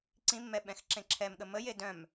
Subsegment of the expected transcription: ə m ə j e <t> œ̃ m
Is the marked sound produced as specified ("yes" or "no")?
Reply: no